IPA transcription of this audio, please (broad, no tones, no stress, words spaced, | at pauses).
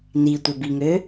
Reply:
nitʷəbiŋø